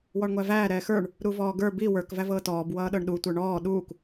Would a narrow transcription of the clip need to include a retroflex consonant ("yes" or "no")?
yes